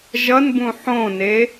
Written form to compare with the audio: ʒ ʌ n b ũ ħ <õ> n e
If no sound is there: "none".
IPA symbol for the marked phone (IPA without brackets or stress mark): õ